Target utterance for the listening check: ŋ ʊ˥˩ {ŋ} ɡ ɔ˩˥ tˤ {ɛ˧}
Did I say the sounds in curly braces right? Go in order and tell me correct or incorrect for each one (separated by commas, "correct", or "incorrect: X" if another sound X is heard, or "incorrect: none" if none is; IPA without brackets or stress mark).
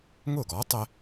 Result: incorrect: none, correct